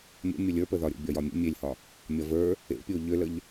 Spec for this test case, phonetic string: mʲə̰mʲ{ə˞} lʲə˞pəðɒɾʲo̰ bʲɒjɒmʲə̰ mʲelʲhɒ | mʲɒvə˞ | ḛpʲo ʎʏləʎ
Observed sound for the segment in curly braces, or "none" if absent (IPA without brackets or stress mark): ə